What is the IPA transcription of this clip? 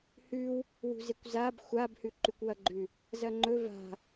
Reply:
h ʉ w | w ṳ z e kʷ z a b xʷ a b h ʉ ǃ ʉ kʷ w ɐ ɡ͡ǃ ʉ | z ɐ ŋ͡ǃ ɵ v a̤

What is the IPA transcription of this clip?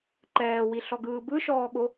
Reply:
ǃ ɛː w i ɬ ɔ ɡ ɯː b ɯ ʃ ɔː ɠ o

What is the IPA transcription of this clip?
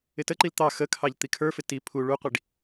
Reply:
ɪ t ə ǃ i l t̪ ɑ x ə kʰ ɑ ʎ t̪ i kʰ ə˞ f ɪ t i pʰ u ɭ u qʷ i ɖ

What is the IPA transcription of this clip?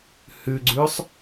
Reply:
h ʉ ɡ͡ǀ ʉː sˤ

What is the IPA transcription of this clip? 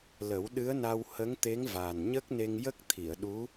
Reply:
l ə˨˩˦ w ɗ ɨ˧˥ ə̯ n a˧ w h ə˧˥ ŋ t̪ e˧˥ ŋ v aː˨˩ n ɲ ə˦˥ k̚ n e˧ ŋ j ə˦˥ k̚ t̪ʰ i˨˩˨ ə̯ ɗ u˧˥

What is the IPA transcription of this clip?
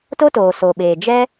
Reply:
t o˦ t oː˨ s o˨ ɓ eː˨ d͡ʒ ɛ˦

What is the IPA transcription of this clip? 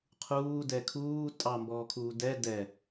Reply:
qʰ uː d ɛ kʰ uː tʼ ɑ m b ɔː kʰ uː d ɛ d ɛ

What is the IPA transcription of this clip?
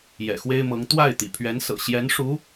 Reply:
j ɛ̰˨˩ x w e˥ ɪ̯ m ɤ˧˥ ŋ t̪ w a˥˩ ɪ̯ t̪ ḭ˨˩ pʰ ɥ ɛ˧˥ n s ɤ̰˨˩ ɕ j ɛ˧˥ n ʂ u˧˥

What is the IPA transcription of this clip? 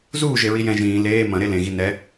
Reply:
z uː ʒ e ɹ i j ɛ̃ ʒ ĩː l eː m ɐ̃ ɾ e l ẽ ɣ i n ɛ

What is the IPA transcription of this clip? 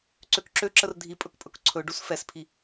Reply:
ǀ ø k ǁ ø ǁ ə r dʱ i pʼ ɵ k pʼ ɵ k ǀʰ ɵ ɖ u s f ɛ s pʰ i

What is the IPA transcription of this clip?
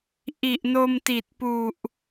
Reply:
ʔ i˨˩ ʔ n o˧ m t i˨˩ t̚ p u˨˩ ʔ

